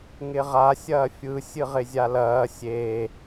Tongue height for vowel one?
high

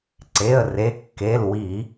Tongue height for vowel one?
mid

